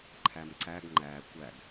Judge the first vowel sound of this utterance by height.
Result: low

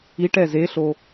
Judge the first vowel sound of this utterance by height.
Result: high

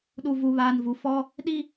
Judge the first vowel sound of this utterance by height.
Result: high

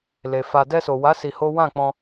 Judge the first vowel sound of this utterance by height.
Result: mid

